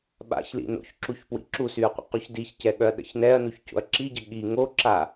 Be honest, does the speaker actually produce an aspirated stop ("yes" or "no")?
no